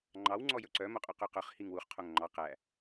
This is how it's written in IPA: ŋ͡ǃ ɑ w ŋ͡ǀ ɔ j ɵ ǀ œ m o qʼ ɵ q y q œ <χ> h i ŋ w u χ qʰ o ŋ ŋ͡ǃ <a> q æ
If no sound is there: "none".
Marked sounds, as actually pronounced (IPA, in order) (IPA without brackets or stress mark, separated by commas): χ, ɑ